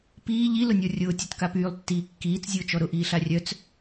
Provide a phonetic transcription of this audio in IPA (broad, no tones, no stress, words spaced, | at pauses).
piː ʎilʊnʲɔ rʲʊːtʲɔtka pyːlˠtːiː kːiːt͡szʲʊːt͡ʃɔ ɾʊʔiːɬa rʲœt͡s